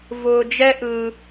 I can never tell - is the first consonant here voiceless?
no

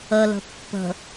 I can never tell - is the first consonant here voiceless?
no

